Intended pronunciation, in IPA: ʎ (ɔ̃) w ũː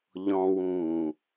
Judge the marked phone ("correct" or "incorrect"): correct